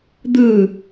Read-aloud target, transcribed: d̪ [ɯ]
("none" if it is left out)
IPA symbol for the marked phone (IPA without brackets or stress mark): ɯ